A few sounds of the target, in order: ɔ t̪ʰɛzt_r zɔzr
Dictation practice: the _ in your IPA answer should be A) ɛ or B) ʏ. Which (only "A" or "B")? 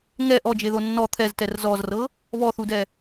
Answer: A